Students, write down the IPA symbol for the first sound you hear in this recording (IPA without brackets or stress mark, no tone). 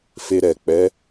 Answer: f